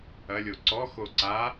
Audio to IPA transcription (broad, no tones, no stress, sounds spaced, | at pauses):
ɐ lʲ o ǀ ɔ x o ǀ a